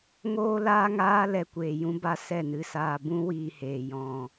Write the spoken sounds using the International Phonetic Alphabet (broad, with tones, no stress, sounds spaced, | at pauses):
ŋ oː˦ l aː˦ ŋ aː˦ l ɛ˧ kʷ eː˨ j ũ˦ b a˦ s ɛ˦˨ n ɨ˧ s aː˧ b ũ˦ w iː˧ h eː˨ j ɔ̃˨